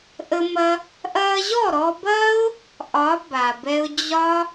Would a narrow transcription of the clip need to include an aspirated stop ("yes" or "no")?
no